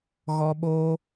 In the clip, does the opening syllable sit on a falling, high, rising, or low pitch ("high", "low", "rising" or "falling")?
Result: high